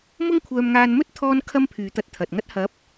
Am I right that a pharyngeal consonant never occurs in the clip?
yes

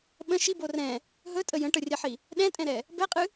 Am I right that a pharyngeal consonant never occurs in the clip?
no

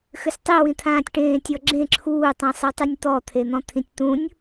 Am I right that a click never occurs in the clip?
no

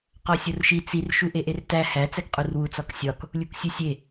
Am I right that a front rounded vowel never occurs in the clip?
yes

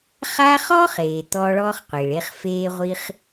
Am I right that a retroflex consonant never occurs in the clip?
no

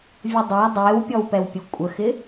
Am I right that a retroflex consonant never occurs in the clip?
yes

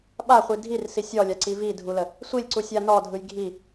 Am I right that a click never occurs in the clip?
no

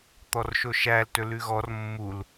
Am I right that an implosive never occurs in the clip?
yes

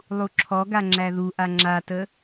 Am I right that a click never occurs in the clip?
no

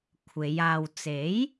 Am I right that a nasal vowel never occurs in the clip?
yes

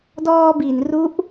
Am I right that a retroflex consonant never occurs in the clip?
yes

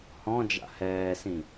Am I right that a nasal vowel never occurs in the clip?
no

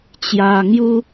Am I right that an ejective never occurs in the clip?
yes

